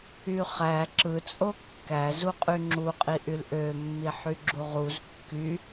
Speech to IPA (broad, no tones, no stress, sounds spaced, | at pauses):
y χ æ ǁ ɯ t͡sʼ o kː æ z u qʼ y ŋ͡ǁ u qʼ i ʔ y l ʔ ø mː i ħ y ɡ͡ǁ u ʁ u z kː y